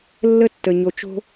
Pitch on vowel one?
high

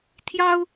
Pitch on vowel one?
high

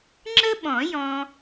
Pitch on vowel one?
high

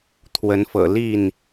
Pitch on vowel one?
rising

